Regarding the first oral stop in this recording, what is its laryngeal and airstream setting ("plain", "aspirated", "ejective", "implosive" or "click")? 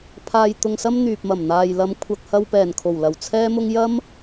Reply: aspirated